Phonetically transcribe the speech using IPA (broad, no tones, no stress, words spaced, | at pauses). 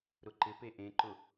ɾʊǃɪpe ʔẽǃʊ